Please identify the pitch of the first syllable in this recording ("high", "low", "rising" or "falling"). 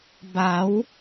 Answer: rising